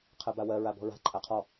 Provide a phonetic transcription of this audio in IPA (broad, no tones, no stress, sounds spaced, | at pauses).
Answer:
qʰ ɜ b a w ɜ ɹ a b ɔ̤ ɹ a̤ ǃʼ a qʰ ɔ